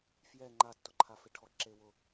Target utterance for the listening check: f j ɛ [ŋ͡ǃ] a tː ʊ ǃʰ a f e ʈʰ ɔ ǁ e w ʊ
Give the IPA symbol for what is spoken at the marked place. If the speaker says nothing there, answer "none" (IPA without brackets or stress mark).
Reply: ŋ͡ǃ